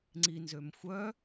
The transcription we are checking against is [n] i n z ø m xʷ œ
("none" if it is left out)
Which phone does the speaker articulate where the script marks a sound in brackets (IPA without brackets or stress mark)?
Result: ŋ͡ǀ